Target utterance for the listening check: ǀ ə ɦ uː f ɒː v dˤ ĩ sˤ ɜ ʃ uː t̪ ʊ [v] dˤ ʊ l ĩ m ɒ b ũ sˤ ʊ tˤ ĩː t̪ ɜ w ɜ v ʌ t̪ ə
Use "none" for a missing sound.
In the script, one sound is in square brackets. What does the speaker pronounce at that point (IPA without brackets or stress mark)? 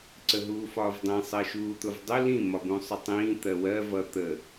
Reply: v